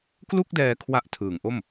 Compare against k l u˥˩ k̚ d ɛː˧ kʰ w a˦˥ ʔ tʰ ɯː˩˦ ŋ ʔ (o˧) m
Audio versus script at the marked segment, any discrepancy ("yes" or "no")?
yes